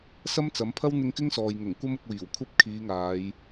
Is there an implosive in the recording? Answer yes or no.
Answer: no